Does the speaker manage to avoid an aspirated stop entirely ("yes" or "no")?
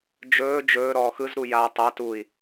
yes